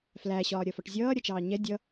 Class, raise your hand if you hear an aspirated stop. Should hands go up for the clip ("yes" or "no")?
no